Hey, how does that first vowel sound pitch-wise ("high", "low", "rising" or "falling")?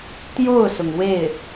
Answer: falling